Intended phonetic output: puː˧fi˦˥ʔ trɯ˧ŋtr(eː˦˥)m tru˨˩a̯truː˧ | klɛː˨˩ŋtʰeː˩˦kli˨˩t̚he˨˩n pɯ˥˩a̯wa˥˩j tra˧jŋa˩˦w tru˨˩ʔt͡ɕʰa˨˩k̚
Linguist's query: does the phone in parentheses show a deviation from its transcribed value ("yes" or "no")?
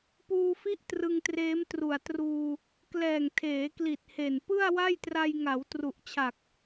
no